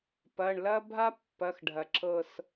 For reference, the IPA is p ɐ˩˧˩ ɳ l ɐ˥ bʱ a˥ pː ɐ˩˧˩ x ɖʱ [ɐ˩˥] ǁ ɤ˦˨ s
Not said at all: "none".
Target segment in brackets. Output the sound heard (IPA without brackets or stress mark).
ɐ˩